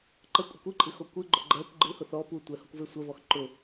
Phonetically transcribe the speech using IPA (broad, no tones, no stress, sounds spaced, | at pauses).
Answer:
ǃ ə kʷʼ ə kʷ ɨ ǃʼ ɨ x o kʷ ɨ ɡ͡ǃ ʊ ɡ͡ǃ ɜ kʷ ɡ͡ǃ ɨ h ʊ θ ɔ p u tʷ ɛ h o kʷ v e sʷ ɜ v ɔ x ǃ ʊ